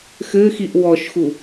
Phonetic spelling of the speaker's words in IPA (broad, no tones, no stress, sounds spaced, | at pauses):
x ɘː x i ʔ w ɔ ʃ x u